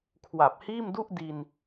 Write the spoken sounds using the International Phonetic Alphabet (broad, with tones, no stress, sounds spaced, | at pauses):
kʰ w a˨˩ p̚ h iː˥˩ m d u˥˩ ʔ d i˧ n